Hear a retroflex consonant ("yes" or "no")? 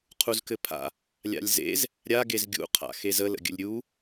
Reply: no